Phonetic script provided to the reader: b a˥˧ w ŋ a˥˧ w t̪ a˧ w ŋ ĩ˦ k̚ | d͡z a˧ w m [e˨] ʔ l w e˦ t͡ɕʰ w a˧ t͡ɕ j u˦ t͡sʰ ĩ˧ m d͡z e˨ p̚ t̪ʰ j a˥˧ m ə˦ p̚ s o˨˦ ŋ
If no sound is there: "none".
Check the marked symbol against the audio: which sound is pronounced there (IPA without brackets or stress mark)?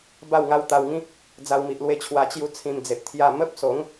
i˨